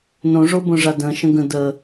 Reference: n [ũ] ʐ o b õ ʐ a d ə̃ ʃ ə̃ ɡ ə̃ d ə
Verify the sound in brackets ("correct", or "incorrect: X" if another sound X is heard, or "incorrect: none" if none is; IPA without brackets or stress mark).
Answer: incorrect: õ